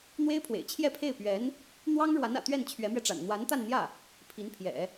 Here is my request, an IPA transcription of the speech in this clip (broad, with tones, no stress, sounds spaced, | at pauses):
n̪ w e˥ ɪ̯ pʰ w ḛ˨˩ ɪ̯ t͡ɕʰ j ɛ˥˧ pʰ e˥˩ ɪ̯ p ɥ ɛ˧˥ n | n̪ w ɑ˥ ŋ ɻ w a˧˥ n ä̰˨˩ t̪ ɥ ɛ˥˩ n t͡ɕʰ ɥ ɛ˧˥ m ɥ ɛ˧ ʈ͡ʂ a̰˨˩ n n̪ w a˧˥ n t̪ a˥˧ n n̪ j ä˥˩ | pʰ i˧˥ n pʰ j ɛ̰˨˩˦